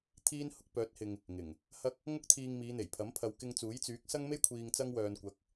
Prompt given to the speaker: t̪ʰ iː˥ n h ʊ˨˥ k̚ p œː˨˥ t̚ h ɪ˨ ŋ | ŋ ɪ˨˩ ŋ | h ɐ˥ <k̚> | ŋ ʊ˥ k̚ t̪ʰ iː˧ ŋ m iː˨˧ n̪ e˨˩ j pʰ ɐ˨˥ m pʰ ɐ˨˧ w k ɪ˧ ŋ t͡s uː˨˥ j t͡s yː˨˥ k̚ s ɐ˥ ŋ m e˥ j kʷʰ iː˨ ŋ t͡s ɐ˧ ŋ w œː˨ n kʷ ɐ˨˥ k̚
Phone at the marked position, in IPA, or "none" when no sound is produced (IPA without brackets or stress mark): k̚